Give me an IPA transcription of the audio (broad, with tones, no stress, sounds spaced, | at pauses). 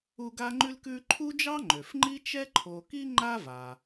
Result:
u˦ ɡ a˥ ŋ͡ǃ ʉ˥ l k ʉ˥ ǃʰ u˥ d͡ʒ ɑ˥ ŋ͡ǃ ø˩ f ŋ͡ǃ i˥ t͡ʃ ɛ˥ ǃʰ o˨ k i˥ ŋ͡ǃ a˦ v a˩